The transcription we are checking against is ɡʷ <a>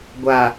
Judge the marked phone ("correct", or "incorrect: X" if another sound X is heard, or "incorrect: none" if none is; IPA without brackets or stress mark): correct